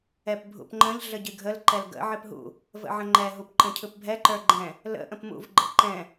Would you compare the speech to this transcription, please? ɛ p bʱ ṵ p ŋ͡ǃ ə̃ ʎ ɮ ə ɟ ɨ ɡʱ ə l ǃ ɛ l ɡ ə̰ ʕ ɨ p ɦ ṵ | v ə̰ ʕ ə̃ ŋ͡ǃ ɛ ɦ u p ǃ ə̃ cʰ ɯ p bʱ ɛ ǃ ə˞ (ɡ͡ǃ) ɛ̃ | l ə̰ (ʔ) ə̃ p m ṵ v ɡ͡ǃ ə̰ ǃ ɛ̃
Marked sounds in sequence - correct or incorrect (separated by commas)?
correct, correct